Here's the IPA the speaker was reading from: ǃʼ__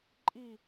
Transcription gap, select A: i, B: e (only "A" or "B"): A